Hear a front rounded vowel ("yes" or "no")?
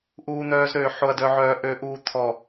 yes